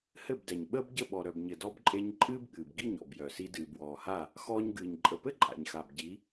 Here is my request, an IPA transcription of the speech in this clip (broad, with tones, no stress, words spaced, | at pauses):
hɘ˦˨bdɛ˨ɲɓəː˦bɟə˦˨ ɓɔ˨ɾœ˨bɲɘ˨ dɔ˧bǃʼe˧ɲ ǃʼɨː˦bɠɨː˨bɡi˦˨ɲ ɔ̰˨bjœ˨si˧ dɨː˨bwɔː˨ha˦˨ | xɔː˧ɲɡɨː˨ɲ ǃʼə˨pɘ˦ ǃʼa̰˨ɲxa˨bɟi˨˦